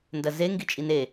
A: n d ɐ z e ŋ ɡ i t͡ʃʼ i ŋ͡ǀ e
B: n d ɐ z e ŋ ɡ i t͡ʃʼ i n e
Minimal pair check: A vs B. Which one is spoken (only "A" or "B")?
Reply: B